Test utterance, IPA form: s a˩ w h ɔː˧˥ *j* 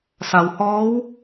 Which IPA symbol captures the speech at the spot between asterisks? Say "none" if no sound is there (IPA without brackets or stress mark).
w